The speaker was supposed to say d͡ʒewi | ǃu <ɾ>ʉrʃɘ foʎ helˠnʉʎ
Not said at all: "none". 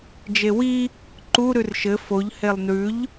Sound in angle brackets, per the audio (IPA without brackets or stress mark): ɾ